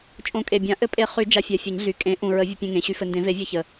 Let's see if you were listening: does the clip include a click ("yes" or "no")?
no